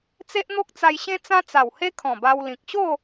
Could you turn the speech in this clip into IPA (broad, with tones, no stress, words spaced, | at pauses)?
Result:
t͡se˦ʔn̪o˦k̚t͡sa˧jɕẽ˦ t͡sã˦t͡sa˨˩whe˦ kʰɔ̃˨˩ba˧wlĩ˨k̚ ɕo˥˧